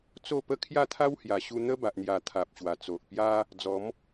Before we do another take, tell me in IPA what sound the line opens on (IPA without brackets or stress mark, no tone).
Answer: t͡s